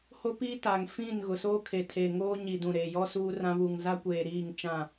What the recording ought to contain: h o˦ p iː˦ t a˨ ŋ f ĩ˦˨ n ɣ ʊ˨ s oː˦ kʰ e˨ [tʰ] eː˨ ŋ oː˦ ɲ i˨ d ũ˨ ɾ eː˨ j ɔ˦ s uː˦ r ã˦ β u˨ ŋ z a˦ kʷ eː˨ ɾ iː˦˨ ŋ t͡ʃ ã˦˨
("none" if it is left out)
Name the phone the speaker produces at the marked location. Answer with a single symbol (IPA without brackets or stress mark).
tʰ